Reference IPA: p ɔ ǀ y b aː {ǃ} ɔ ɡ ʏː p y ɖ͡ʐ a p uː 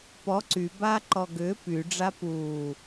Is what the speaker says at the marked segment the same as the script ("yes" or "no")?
yes